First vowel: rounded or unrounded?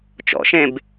rounded